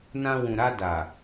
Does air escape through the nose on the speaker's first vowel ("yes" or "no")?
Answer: yes